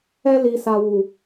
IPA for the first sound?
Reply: ɛ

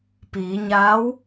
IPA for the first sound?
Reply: p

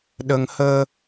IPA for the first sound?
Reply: ɗ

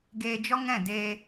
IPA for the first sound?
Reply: ɡ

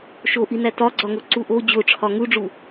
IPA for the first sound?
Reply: ʃ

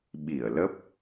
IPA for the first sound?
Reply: ɓ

